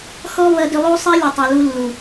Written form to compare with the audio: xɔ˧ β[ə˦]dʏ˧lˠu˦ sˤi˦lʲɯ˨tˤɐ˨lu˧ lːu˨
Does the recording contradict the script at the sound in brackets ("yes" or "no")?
yes